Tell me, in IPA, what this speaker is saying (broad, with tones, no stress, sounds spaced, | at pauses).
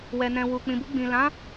w ɛ˨ n ɛ̃˨ w u˨ k͡p ĩ˨ b u˧ ɡ͡b ĩ˨ l ã˨˦